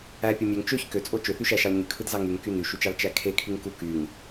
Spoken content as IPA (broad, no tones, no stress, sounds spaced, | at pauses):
æ pʲ ɯ mʲ ø ŋ t͡ʃ ø ç k ø t͡sʼ o t͡ʃ ø θ y ʃ æ ʃ ɑ l ɲ y kʰ ɯ d z ɑ ŋ y ŋ k y n y ʃ y t͡ʃ ɑ l t͡ʃ æ kʰ e kʰ y ŋ k u k y ŋ